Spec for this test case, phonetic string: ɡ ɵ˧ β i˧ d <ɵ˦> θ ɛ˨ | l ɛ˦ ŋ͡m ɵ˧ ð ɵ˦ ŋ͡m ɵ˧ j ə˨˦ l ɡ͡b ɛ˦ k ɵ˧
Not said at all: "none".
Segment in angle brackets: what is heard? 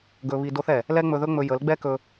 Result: o˦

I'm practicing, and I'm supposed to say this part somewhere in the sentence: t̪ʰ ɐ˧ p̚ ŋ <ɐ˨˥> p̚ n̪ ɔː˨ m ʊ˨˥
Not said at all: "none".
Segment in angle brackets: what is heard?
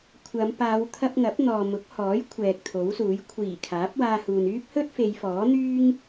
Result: ɐ˨˥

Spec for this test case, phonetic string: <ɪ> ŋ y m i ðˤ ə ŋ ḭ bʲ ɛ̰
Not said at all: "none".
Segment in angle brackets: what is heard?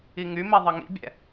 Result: i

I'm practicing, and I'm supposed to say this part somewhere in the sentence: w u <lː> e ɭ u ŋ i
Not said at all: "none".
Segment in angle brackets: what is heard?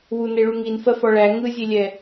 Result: n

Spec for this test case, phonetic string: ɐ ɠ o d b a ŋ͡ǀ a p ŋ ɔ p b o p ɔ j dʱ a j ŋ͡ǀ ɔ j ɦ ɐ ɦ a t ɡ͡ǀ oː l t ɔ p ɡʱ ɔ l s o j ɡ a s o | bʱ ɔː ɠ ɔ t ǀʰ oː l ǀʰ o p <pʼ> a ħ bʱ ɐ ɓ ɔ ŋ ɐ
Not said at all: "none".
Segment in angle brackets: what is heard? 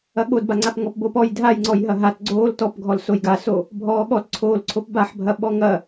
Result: b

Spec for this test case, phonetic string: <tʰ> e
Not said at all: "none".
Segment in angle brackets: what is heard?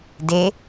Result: d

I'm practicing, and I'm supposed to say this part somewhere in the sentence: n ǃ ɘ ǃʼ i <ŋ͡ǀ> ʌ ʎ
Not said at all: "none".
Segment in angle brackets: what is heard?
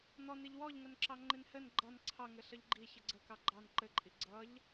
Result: ɡ͡ǀ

